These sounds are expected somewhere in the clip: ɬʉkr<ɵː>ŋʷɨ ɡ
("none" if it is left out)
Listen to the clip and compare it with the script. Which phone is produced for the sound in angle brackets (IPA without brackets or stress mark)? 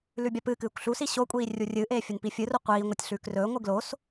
ɵː